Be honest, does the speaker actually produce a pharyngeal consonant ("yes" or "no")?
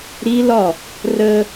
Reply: no